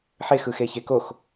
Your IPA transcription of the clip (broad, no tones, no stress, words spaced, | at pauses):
ħex ɯxeçekox